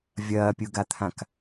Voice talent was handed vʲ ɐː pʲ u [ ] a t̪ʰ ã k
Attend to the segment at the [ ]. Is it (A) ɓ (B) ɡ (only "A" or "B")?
B